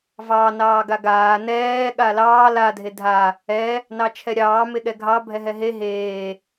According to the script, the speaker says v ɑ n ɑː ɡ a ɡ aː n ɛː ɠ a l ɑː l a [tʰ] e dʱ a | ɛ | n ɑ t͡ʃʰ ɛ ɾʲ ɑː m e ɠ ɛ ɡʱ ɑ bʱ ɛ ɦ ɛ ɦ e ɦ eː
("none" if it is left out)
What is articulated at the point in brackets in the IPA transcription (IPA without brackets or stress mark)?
dʱ